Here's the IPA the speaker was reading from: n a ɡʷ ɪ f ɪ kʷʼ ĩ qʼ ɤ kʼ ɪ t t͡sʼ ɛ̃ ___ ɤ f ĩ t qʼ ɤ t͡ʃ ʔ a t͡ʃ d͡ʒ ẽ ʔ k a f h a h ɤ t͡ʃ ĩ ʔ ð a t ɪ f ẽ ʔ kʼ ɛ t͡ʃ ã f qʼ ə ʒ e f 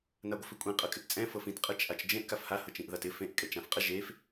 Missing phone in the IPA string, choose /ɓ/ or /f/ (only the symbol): f